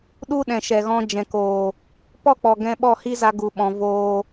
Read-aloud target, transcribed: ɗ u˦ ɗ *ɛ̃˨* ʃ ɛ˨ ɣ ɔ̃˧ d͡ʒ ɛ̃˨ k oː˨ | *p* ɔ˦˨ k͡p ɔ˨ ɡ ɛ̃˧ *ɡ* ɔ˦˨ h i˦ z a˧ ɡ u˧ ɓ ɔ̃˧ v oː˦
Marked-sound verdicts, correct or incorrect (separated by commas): correct, correct, incorrect